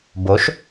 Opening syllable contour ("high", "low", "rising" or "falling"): rising